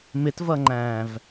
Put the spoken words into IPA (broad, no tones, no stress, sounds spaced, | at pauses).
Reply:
m ɪ t v ʌ ŋ͡ǃ æ̃ː v